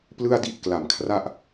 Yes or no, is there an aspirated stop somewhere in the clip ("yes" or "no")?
yes